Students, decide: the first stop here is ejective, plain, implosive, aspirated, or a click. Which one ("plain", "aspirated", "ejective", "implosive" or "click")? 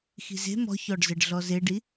plain